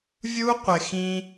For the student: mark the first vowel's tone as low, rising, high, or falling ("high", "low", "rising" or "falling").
high